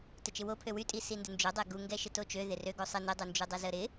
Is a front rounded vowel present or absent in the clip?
present